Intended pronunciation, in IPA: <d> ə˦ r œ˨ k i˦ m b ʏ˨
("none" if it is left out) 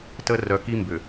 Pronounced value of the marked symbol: t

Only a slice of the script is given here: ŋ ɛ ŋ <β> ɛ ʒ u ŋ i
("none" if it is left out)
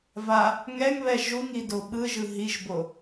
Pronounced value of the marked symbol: β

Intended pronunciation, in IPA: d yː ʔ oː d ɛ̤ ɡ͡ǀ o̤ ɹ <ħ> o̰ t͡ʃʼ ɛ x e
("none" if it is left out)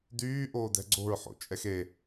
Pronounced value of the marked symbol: ħ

